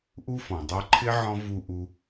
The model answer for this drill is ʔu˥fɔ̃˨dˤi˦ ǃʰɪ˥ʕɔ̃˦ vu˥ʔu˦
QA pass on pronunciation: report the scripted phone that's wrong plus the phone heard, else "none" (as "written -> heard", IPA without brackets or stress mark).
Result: none